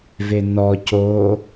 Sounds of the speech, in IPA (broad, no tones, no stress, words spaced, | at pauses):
venɔ co